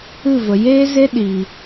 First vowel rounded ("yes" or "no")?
no